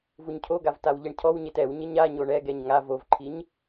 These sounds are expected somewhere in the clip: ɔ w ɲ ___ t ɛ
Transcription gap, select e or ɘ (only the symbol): e